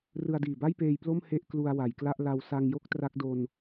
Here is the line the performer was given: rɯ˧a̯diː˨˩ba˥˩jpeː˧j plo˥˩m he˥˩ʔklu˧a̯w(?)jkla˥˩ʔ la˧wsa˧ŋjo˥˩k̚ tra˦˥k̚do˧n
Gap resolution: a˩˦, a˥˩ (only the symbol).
a˩˦